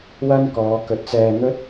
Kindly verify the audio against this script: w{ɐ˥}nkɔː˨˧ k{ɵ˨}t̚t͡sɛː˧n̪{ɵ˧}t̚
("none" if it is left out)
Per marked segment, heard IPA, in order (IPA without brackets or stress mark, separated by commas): ɐ˥, ɵ˨, ɵ˥